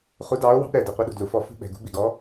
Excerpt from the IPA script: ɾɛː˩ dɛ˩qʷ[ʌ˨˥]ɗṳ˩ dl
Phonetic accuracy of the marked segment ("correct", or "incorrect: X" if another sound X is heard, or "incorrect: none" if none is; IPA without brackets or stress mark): correct